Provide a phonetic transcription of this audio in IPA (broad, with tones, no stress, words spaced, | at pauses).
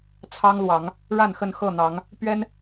t͡sʰɑ˦ŋlwɑ˨˦ŋ | ɻa˥˨nxə˥˨n xɤ˥˨n̪ɑ˨˦ŋ | pɥɛ˦n